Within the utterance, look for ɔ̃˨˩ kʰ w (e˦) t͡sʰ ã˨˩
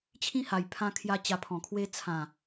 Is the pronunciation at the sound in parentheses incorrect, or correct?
correct